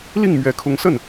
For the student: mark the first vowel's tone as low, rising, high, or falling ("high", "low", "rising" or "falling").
falling